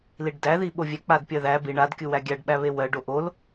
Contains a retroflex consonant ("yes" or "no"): yes